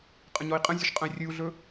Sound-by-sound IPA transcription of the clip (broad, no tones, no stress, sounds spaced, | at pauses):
qʼ ɐ̃ ɲ ɔ i̯ qʼ ə̃ zʲ ɵ ʃ qʼ ə̃ i̯ rʲ ɨ u̯ ɮ ɵ